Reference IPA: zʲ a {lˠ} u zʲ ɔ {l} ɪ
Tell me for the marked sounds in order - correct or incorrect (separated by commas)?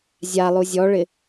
correct, incorrect